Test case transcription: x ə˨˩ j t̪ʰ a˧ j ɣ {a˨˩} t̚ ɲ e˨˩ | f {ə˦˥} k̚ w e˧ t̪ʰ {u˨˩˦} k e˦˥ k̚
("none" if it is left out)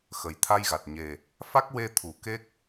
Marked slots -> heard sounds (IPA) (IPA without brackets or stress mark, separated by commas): a˨˩, a˦˥, u˨˩˨